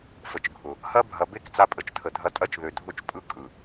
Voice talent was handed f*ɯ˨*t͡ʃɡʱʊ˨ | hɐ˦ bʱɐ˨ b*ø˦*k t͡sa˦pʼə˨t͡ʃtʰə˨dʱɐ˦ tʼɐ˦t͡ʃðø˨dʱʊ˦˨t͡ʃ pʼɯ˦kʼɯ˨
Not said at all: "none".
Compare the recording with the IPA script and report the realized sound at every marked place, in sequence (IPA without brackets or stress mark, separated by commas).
ə˨, e˦